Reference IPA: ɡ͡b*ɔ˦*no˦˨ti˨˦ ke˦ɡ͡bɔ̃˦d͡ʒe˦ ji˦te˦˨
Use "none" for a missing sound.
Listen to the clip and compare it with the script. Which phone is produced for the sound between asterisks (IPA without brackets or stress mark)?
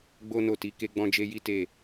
o˦